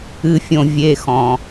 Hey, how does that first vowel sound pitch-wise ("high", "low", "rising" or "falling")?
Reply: low